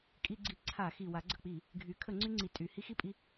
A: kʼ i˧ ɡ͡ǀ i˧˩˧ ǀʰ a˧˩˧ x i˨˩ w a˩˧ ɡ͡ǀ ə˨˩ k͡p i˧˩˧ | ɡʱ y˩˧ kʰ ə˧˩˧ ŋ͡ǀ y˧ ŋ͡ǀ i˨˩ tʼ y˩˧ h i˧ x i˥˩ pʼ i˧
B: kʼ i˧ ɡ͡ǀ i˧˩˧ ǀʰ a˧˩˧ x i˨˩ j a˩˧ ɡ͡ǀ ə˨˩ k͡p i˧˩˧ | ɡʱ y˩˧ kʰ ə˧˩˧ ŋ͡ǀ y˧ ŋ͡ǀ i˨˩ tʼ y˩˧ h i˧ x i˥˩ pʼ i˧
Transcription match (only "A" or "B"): A